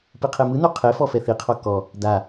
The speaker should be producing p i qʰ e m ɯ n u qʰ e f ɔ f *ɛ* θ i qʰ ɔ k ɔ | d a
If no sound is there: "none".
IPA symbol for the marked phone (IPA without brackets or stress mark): ɛ